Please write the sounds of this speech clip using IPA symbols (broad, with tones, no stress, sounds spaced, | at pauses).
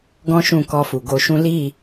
ɡ ɔ̃˦ ʃ ũ˦˨ k ɔ˧ f u˨ ɡ o˧ ʃ ũ˦ l i˦˨